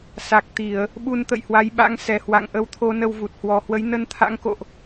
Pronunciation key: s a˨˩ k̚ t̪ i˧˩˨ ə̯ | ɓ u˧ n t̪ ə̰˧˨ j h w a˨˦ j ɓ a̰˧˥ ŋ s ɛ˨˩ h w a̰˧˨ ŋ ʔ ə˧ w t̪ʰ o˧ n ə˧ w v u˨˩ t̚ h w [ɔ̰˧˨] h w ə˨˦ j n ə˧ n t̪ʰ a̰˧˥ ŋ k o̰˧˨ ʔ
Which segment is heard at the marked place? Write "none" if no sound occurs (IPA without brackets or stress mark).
ɔ˨˩